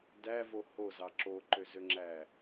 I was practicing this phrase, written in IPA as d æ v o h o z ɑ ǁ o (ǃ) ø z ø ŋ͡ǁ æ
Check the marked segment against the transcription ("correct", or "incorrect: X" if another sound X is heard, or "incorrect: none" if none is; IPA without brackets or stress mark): correct